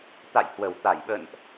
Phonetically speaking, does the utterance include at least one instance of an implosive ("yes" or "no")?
yes